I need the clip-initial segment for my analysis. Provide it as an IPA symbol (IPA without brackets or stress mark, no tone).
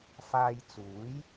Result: f